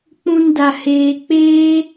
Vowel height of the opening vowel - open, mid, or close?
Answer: close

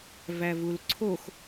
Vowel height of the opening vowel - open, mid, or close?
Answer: open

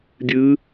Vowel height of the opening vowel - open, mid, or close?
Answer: close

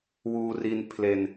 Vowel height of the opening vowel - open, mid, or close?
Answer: close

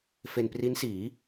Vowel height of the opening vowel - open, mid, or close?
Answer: mid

